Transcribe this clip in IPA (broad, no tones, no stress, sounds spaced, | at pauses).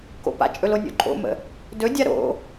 k o̰ p a̰ t͡ʃʼ ɵ l o nʲ o̰ ǃʼ o̰ m ə̰ | d ɵ dʲ a ɾ o̰